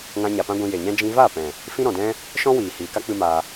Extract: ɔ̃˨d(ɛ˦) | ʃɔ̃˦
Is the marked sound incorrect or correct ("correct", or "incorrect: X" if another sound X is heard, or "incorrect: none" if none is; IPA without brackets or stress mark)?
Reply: incorrect: ɛ̃˦